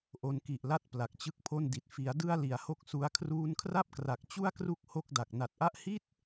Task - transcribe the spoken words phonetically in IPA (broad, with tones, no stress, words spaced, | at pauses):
ʔo˧nki˨˩ʔla˥˩t̚ pla˨˩k̚t͡ɕɯ˦˥k̚pʰo˥˩ndi˨˩t̚ fi˩˦a̯ dɯ˧a̯ li˩˦a̯ho˦˥k̚su˧a̯ kʰruː˧nkʰra˥˩p̚kra˨˩k̚ t͡ɕu˥˩a̯kru˦˥k̚ ho˥˩k̚da˨˩k̚ na˨˩t̚ʔa˥˩ʔ hi˥˩t̚